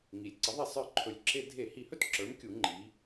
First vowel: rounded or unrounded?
unrounded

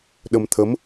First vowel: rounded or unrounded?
unrounded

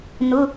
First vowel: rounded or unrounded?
rounded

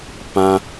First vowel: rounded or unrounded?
unrounded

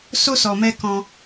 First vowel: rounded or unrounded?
rounded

